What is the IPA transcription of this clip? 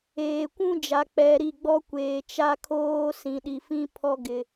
eː˨ kʷ ũ˦ d͡ʒ a˨ k͡p ɛ˨ ɾ i˦˨ ɡ͡b ɔ˦ kʷ eː˨ t͡ʃ a˦ kʰ oː˦ s ĩ˨ ɗ i˨ f ĩ˦ pʰ ɔ˦ ɡ ɪ˦

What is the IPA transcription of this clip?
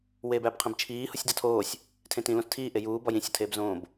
w eː b æ b qʰ ĩ b t͡ʃʰ iː h u sʲ d ɒ tʰ oː sʲ | tʰ ẽ t ĩ l õ s tʰ iː ʔ e j uː b ɒ j ĩ sʲ ɒ tʰ eː b z õː b

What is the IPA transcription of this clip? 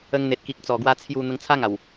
ə˧ ŋ n̪ e˨ t̚ k i˨ k̚ t͡s ɔ˨˩ ɡ w a˧ t͡sʰ j u˧ n̪ ə˧ ŋ t͡sʰ a˦ ŋ a˨˩ w

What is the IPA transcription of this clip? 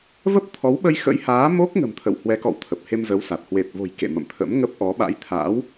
v ə˦˥ p̚ t̪ʰ ɔ˨˦ w ɓ ə˧ j x ə̰˧˥ j h aː˨˦ m o˦˥ k̚ ŋ ə̤˨˩ m t̪ʰ ə̰˧˨ w h w ɛ˨˦ k ɔ̰˧˨ w t̪ʰ ə˨˩ p̚ h e˧ m z ə˨˦ w s a˨˩ t̚ h w e˨˩ t̚ v o̤˨˩ j k ḛ˧˨ m ə̰˧˨ m t̪ʰ ə̰˧˥ m ŋ ə˦˥ p̚ ʔ ɔ˨˦ ɓ a̰˧˥ j t̪ʰ a̰˧˥ w

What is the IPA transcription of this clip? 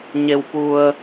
ɲ e˧ w p u˧ ə̯

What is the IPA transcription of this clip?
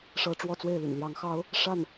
ʂ ɤ˧˥ ʈ͡ʂ w ɔ˥˧ t͡s w e˥˩ ɪ̯ l y̰˨˩ n l j ɑ˧˥ ŋ x ɑ˥ ʊ̯ | ʂ a˥˩ n

